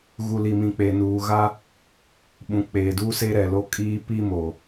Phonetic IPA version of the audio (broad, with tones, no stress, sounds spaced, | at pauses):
ɣ u˨ l i˨ m ĩ˨ k͡p e˨ n uː˨ ɣ a˦ | ɓ ũ˨ k͡p eː˨ d uː˦ s e˦ ɾ ɛ˨ l o˦ kʼ iː˦ p i˦ m o˨